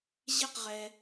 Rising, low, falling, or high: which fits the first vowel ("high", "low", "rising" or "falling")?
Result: falling